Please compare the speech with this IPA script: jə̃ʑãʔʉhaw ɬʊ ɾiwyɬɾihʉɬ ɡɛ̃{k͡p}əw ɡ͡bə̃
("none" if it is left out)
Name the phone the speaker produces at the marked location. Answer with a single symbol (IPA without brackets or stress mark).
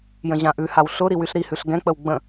k͡p